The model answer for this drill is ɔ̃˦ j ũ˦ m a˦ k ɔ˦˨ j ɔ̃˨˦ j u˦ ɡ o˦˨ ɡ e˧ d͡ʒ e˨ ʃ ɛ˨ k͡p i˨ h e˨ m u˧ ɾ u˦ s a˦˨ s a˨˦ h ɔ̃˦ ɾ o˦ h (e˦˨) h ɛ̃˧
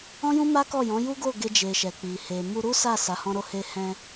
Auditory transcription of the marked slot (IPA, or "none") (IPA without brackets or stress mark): e˧